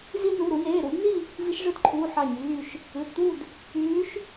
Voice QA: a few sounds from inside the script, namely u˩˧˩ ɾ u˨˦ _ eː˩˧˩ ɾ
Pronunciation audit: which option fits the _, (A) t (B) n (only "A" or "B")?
B